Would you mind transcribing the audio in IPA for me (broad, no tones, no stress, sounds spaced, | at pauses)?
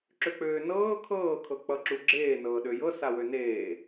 ǁ ø k͡p øː n ɤː kʰ ɤː kʰ ɤ k͡p ʌ ǁ u ɡ͡ǁ eː n ɤː ɗ ø j ɤ s a w ø n eː